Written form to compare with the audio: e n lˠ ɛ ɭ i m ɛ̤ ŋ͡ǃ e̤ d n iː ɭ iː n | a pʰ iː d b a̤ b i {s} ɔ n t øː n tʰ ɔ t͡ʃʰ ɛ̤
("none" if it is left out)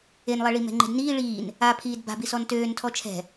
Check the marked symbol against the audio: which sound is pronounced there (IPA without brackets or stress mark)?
s